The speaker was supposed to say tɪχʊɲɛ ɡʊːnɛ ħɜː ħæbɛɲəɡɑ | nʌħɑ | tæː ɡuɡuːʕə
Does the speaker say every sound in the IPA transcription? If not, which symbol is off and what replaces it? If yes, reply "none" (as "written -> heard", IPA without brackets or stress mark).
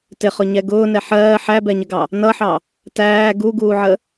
none